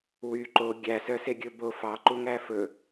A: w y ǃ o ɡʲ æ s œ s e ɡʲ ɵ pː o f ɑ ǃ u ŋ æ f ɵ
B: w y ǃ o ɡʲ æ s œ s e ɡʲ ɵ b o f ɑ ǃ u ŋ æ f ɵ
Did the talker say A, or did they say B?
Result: B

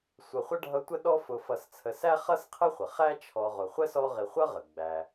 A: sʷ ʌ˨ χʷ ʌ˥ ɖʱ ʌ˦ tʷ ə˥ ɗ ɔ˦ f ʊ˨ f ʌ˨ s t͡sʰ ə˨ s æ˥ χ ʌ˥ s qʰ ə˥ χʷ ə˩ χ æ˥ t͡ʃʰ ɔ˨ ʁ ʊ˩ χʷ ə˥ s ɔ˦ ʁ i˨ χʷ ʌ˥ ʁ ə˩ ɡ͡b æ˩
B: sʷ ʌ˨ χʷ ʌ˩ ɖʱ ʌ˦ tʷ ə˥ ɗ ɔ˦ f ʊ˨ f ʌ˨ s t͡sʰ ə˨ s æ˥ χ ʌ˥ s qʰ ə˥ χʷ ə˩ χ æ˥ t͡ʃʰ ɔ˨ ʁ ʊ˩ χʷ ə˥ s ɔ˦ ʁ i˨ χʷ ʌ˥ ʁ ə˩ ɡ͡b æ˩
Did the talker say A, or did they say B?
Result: A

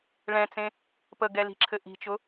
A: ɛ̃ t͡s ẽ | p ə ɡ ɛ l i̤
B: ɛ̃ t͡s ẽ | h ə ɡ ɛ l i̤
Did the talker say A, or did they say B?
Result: A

